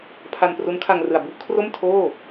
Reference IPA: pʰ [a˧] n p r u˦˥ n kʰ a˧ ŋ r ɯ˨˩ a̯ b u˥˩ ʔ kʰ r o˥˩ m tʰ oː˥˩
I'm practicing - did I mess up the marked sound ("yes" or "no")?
no